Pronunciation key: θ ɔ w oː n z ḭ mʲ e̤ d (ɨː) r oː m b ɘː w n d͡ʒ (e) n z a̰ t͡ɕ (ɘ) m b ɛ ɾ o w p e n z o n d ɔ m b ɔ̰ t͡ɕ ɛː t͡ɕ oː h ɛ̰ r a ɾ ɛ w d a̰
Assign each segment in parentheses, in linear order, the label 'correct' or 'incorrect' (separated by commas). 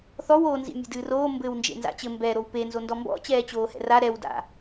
correct, incorrect, correct